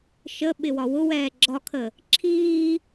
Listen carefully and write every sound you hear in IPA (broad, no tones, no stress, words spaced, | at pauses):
ʃə ɓɪwɒwʊwɛː ɡ͡ǁɒkʰə | ǁʰiː